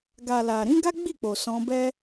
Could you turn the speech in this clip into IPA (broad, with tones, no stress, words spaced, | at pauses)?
ɡa˨la˨ɾĩ˨˦ ɡa˦ɡ͡bi˦˨k͡po˨ sɔ̃˧bɛ˦